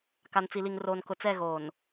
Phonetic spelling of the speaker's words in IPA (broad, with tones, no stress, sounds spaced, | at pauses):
k a˨ n t͡s i˨ l i˨ ŋ r oː˨ n k ʊ˨ t͡s ɛ˦˨ ɣ oː˨ n